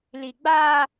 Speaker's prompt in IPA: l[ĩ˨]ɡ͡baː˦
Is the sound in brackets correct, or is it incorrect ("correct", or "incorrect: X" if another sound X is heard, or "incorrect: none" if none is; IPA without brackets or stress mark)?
incorrect: i˨